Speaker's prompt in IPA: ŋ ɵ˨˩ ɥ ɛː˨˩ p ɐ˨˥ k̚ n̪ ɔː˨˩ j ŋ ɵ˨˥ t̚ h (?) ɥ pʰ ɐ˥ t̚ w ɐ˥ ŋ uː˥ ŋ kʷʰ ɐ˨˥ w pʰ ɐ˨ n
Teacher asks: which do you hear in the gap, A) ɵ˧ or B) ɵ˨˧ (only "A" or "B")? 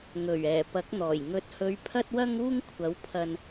B